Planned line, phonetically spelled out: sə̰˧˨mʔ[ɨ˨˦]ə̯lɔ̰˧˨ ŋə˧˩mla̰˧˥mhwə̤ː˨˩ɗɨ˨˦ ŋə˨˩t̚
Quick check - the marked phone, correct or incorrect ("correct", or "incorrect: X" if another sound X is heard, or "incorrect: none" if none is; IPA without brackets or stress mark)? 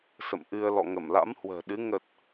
incorrect: ɨ˧